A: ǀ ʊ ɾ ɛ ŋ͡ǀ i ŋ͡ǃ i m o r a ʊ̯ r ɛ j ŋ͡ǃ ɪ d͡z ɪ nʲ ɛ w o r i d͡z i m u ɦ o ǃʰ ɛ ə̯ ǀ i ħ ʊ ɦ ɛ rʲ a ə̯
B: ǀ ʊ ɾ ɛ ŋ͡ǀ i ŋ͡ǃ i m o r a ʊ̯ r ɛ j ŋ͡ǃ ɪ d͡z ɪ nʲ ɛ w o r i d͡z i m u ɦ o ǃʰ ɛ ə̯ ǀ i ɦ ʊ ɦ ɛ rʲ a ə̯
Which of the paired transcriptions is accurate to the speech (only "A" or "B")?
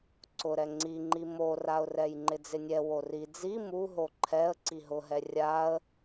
B